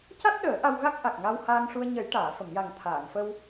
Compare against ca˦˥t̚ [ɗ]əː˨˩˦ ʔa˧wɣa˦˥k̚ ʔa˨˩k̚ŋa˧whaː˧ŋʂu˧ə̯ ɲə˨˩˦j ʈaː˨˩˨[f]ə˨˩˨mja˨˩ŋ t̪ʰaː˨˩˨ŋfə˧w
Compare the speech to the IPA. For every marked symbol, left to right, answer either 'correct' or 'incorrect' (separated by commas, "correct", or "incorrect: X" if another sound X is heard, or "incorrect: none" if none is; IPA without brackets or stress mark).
correct, correct